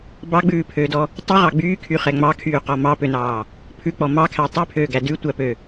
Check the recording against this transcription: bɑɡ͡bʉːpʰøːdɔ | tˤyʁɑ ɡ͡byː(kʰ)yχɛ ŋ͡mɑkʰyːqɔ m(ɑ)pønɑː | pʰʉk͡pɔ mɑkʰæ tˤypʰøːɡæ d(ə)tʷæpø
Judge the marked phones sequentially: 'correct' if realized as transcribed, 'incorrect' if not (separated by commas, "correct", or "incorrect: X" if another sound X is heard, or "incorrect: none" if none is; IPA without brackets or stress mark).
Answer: correct, correct, incorrect: ʉ